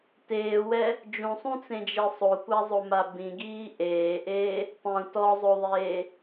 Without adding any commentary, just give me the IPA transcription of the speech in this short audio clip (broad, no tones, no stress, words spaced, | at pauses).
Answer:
teːwɛ | d͡ʒũsˤũt͡sẽd͡ʒe sˤokʷazˤoma bĩɡiː ʔeːʔeː | tˤũ tɔzˤoðˤeː